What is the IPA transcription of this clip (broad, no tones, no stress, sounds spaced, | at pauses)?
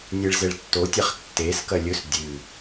nʲ e ɭ z e ɭ tː o tʲ a χ tː e s k ɐ lʲ ɵ s dʲ ɨ